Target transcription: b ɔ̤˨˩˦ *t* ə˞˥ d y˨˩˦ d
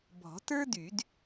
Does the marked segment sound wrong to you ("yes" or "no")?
no